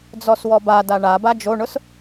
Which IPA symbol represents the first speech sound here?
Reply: d͡z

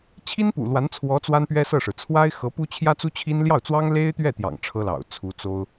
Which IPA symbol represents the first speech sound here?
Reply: t͡ɕʰ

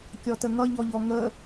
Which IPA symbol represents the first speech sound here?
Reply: kʲ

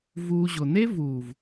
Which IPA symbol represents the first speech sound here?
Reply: v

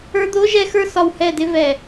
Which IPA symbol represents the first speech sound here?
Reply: ə˞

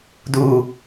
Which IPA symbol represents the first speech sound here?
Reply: d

